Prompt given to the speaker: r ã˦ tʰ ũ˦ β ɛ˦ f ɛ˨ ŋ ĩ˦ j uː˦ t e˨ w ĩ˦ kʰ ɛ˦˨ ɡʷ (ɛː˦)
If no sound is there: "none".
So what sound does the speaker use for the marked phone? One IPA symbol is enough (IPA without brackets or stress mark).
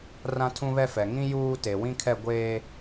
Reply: eː˦